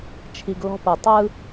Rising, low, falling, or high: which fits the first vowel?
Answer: low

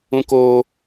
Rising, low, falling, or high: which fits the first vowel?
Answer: high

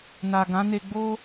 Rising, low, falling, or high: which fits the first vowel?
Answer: low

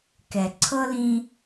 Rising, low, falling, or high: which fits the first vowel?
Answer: low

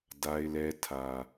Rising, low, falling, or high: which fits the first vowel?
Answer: high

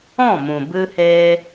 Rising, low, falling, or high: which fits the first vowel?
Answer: falling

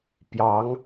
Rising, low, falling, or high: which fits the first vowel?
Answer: rising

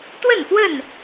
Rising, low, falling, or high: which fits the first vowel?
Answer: falling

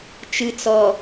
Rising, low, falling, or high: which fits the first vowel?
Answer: low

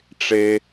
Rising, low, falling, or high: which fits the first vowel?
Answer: high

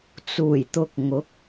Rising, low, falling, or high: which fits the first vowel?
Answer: low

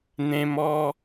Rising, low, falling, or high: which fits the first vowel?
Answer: high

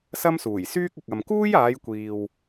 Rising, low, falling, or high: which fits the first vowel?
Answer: high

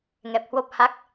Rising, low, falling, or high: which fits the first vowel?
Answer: low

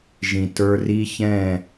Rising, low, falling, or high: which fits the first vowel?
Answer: low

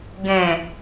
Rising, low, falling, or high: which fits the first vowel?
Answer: low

